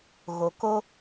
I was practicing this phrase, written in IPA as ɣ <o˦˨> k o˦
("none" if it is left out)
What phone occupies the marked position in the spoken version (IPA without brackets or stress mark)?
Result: o˨